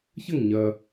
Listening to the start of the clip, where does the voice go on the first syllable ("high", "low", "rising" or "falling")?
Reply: falling